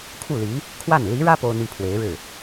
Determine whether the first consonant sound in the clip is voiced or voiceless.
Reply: voiceless